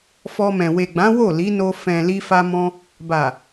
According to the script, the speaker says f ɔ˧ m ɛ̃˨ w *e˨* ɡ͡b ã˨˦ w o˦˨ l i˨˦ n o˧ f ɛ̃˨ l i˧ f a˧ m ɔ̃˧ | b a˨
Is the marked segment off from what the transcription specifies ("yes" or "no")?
no